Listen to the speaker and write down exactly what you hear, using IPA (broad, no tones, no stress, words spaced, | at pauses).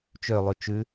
t͡ʃølˠʉ t͡ʃʉ